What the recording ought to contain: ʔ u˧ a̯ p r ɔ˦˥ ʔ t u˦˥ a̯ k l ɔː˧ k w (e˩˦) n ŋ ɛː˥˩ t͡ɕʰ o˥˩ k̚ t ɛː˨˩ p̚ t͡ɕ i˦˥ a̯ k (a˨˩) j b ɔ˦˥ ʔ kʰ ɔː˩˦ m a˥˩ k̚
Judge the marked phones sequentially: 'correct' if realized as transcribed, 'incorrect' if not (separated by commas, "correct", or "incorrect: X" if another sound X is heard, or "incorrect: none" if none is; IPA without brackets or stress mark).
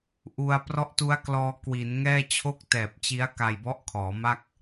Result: incorrect: i˩˦, incorrect: a˧